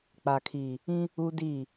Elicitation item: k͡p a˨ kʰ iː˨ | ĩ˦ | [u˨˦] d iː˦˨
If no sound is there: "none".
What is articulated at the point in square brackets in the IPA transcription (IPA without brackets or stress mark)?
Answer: u˦